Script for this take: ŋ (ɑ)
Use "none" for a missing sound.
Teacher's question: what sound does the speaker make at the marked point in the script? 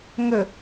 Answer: ə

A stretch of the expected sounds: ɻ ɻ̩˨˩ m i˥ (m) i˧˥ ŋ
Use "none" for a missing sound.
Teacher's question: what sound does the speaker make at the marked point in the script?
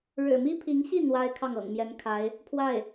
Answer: pʰ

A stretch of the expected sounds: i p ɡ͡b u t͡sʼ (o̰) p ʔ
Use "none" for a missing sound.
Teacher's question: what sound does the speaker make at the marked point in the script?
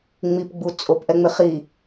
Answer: o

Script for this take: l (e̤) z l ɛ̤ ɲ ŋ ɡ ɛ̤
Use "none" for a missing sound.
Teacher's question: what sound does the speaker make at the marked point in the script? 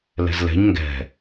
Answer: ɛ̤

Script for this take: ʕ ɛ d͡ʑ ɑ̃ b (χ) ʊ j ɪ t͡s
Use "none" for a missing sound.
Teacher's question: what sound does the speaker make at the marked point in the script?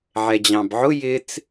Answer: ʕ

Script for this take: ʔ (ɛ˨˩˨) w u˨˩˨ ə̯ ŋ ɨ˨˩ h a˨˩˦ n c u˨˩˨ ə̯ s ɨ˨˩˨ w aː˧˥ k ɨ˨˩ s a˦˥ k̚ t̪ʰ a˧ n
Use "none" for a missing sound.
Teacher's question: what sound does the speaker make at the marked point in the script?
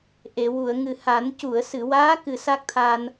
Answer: e˨˩˨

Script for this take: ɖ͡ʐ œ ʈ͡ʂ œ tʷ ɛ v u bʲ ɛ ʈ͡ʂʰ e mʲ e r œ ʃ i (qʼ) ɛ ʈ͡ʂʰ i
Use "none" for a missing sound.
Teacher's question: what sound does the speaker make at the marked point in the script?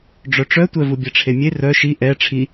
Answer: ʔ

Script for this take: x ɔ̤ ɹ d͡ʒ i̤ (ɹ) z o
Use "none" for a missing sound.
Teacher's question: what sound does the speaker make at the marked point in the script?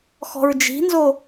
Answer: n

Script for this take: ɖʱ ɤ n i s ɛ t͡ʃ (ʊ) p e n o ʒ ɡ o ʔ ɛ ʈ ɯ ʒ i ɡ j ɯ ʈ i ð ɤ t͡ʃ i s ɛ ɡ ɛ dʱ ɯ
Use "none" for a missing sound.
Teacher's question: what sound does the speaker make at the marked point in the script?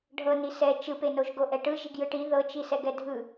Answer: ɯ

